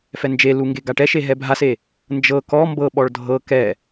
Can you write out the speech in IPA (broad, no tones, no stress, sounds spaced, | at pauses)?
f ɛ n d͡ʒ e l u ŋ ɡ e ɡ a ʈ ɛ ʃ e ɦ ɛ bʱ a s e | n d͡ʒ ɤ k ɔ m b ɤ ɓ ɔ ɭ dʱ ɤ k ɛ